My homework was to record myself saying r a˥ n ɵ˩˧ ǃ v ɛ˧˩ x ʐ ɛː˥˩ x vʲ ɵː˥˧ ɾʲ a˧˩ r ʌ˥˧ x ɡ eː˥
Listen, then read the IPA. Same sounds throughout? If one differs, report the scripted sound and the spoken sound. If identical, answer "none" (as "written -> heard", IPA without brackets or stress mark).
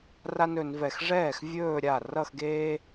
ǃ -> n